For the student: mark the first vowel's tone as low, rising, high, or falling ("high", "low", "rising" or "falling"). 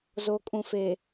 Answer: low